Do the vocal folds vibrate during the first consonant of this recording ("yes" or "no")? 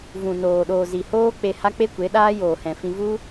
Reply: yes